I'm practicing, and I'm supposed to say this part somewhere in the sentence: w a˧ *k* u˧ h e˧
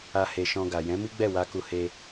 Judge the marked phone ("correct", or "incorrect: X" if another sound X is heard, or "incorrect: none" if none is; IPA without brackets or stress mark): correct